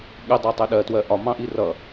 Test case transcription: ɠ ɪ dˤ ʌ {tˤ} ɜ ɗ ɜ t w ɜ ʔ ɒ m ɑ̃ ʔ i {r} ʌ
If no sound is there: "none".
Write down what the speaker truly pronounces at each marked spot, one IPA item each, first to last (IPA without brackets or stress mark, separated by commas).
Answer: tˤ, r